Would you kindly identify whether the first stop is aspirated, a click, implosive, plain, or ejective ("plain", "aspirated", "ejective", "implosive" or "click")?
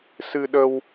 implosive